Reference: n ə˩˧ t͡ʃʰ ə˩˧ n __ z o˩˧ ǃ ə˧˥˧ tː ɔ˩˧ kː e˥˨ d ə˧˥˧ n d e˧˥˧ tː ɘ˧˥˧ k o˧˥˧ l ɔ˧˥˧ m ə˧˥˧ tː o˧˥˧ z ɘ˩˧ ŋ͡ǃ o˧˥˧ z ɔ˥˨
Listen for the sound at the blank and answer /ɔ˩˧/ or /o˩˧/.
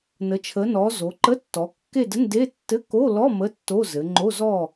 ɔ˩˧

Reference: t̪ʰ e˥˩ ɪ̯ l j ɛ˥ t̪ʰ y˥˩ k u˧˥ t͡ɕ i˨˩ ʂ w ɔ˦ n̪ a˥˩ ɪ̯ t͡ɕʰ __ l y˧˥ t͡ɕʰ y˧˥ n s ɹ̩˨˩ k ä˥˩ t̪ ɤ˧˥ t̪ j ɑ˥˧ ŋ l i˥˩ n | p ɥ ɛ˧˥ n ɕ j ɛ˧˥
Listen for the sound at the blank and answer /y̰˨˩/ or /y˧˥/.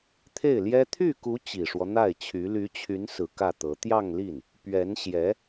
y˧˥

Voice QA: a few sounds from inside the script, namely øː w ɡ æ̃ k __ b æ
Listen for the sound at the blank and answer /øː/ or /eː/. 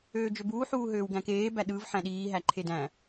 eː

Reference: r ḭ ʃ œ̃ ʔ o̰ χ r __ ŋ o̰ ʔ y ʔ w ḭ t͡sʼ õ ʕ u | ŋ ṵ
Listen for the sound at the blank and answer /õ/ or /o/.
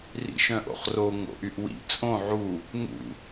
o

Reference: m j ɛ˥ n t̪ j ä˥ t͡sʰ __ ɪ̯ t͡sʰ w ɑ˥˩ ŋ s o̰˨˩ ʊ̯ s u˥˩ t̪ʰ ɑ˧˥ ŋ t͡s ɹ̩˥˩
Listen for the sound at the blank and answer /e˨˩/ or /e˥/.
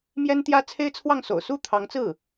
e˥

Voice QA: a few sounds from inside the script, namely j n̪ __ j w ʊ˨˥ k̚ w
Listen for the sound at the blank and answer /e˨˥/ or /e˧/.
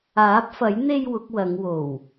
e˧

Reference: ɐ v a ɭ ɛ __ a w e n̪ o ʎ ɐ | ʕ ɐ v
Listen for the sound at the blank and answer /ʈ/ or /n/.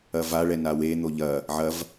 n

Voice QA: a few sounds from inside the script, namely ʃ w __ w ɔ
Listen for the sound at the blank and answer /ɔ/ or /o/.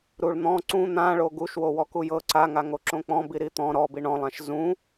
o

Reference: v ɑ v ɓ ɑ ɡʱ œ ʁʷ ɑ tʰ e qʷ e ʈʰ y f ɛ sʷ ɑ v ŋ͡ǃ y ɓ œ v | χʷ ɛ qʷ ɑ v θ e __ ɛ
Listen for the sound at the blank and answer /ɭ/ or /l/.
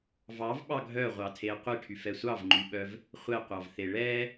ɭ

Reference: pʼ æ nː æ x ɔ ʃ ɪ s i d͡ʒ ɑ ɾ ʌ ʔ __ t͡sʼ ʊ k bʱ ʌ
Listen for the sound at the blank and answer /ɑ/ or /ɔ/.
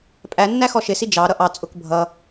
ɑ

